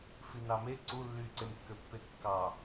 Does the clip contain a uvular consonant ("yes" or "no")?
no